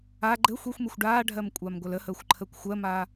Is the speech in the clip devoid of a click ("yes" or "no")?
no